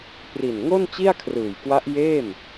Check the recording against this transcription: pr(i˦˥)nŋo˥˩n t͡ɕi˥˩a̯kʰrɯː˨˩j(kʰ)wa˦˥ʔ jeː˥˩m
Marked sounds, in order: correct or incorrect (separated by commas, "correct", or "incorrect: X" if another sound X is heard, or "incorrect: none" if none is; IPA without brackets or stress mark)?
incorrect: i˨˩, incorrect: k